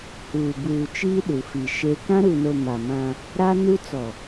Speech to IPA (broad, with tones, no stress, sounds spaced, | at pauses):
h uː˨ b uː˨ t͡ʃ iː˦ ɗ u˨ f i˨ ʃ e˦ k ã˦ ɾ u˨ n o˨ m a˨ m ã˦ | ɾ a˦ n u˦ t͡s ɔ˨